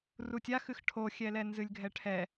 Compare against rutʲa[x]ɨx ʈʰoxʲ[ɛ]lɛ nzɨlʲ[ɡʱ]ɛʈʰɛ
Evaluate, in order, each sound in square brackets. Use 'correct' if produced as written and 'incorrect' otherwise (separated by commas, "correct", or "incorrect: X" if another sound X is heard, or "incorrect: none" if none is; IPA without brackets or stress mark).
correct, correct, correct